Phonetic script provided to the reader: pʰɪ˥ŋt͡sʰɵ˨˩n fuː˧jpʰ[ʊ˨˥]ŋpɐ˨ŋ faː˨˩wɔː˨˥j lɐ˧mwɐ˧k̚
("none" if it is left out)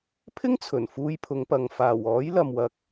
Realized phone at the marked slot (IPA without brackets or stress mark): ʊ˨˧